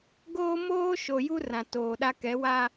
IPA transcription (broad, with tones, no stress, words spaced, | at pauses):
ɡoː˦moː˦ʃo˨ju˦ rã˨toː˨ɗa˦ kɛ˨˦wa˦